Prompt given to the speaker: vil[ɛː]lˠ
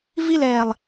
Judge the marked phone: correct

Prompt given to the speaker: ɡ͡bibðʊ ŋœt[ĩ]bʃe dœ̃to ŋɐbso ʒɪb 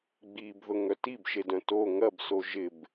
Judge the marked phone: incorrect: i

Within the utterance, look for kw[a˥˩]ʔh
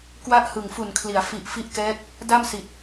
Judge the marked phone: correct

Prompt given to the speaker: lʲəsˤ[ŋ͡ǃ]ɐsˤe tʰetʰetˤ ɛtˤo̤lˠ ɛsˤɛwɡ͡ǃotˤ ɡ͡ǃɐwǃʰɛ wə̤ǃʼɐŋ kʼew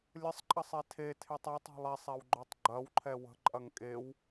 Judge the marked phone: incorrect: ǃʼ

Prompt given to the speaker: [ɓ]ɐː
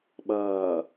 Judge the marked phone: correct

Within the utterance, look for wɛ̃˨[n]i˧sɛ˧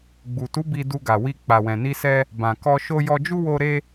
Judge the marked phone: correct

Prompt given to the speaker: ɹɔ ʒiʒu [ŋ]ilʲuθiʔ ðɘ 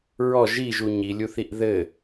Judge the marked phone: incorrect: ɲ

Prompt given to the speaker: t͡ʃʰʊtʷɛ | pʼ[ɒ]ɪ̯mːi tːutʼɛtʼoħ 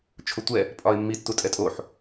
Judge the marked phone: correct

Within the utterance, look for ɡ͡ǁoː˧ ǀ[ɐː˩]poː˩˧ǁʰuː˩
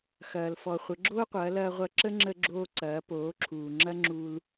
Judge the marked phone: incorrect: ɐː˩˧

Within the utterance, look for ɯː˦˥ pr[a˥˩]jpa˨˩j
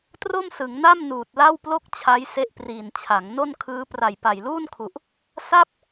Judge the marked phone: incorrect: a˨˩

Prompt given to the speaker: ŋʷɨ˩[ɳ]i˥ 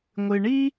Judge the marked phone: correct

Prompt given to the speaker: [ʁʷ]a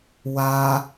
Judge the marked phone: incorrect: w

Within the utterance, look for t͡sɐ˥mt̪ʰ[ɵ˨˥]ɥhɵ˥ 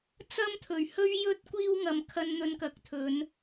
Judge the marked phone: incorrect: ɵ˨˩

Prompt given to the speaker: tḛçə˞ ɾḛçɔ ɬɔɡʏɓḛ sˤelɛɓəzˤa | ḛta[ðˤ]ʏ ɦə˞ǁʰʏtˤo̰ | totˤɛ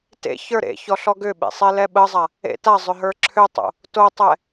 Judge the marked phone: incorrect: zˤ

